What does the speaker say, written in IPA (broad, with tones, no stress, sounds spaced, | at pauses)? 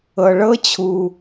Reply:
ɤ˩ ɭ ɤ˥ t͡ɕʰ u˩